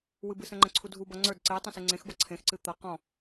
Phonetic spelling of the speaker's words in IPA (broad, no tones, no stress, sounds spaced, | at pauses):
w ɨ b ɨ s ə̃ ŋ͡ǃ ə̃ ǀʰ u dʱ u b ʌ ŋ͡ǀ ə˞ d ǀ e tˤ ə̃ s ɨ ŋ͡ǀ ẽ x b ʌ ǀʰ ẽ x ǀ ɨ t̪ ʌ q ɔ̃